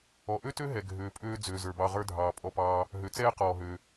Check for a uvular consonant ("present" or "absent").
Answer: present